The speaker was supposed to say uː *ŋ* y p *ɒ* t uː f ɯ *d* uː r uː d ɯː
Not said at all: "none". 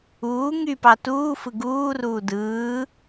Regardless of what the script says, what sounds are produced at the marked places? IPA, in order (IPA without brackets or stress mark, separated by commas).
ŋ, ɑ, ɡ